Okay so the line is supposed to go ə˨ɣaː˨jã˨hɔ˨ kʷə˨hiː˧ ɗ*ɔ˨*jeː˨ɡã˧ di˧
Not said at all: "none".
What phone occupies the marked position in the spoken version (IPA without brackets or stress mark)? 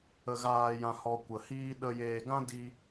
ə˨